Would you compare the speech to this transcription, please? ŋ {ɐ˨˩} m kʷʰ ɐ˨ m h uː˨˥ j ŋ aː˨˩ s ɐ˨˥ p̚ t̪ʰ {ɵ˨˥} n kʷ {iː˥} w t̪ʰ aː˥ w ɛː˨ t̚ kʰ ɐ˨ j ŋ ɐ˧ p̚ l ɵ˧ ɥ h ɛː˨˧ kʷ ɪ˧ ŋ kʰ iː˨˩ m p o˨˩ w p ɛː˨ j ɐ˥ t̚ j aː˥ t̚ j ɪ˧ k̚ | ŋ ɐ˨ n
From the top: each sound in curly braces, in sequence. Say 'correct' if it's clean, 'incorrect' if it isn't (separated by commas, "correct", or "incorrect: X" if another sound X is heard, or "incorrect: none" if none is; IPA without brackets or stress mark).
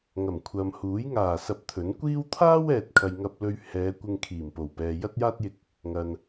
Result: correct, correct, correct